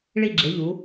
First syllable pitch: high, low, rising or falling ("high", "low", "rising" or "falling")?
falling